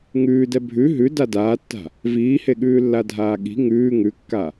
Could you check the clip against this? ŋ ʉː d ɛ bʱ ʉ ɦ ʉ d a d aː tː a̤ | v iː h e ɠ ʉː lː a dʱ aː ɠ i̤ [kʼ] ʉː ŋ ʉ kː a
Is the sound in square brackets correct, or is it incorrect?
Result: incorrect